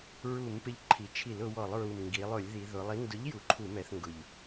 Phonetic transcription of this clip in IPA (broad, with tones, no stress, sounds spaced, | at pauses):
ɹ u˧˩˧ m p ɪ˨˥ ʎ ǃʰ i˩˧ t͡ʃʰ i˧˩˧ l ʊ˩˧ w ɔ˧˩˧ lˠ ɹ u˨˩ m ŋ ɡ i˩˧ lˠ ʊ˧˩˧ lʲ ð i˩˧ ð ʊ˩˧ lˠ i˨˥ n d ʊ˨˥ ʎ j u˩˧ ǃʰ u˧˩˧ m ɛ˩˧ θ ŋ ɡ ʊ˨˩ ʎ